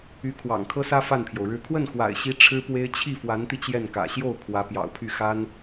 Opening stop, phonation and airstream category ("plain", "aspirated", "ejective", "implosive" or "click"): aspirated